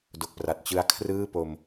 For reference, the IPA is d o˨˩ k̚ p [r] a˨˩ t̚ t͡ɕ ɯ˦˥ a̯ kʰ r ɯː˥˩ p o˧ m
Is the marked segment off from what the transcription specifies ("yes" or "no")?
no